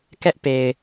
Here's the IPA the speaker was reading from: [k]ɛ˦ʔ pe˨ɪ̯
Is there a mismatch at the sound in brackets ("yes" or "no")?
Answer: no